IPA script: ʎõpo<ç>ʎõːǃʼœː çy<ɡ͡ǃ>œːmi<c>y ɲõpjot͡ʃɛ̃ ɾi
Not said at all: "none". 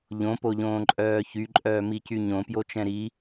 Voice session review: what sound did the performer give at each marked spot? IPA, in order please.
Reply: none, ǃʼ, c

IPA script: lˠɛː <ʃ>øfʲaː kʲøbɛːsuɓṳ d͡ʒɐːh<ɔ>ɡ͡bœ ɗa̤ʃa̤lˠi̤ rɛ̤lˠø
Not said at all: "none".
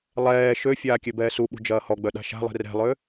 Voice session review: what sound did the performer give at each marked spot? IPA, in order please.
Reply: ʃ, ɔ

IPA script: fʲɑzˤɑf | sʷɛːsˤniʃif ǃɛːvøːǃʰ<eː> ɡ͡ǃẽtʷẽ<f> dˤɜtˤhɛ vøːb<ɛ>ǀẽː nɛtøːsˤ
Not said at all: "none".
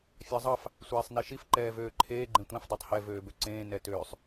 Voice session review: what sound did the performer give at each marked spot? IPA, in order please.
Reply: eː, f, ø

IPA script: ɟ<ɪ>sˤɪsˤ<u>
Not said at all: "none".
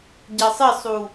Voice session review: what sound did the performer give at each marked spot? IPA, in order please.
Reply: ɛ, u

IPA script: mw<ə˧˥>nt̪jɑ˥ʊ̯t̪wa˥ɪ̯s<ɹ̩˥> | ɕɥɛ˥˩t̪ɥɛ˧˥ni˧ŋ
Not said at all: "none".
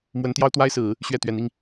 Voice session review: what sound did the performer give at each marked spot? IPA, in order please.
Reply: ə˧˥, ɹ̩˨˩˦

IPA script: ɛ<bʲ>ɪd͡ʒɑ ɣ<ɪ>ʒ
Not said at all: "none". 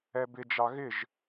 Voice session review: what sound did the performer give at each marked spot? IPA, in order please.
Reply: b, ɪ

